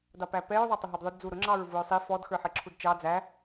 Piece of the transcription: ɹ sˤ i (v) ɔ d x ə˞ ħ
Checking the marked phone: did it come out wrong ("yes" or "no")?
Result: yes